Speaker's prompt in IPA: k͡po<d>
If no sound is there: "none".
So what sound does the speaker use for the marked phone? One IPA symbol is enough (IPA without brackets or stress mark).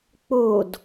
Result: d